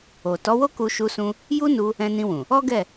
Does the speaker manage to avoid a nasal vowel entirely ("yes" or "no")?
no